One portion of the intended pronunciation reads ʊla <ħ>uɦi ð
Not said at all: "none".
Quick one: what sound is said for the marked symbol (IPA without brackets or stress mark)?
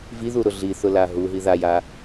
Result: ɦ